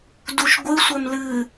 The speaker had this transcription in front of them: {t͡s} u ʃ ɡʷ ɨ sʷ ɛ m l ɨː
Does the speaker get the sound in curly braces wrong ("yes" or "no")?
yes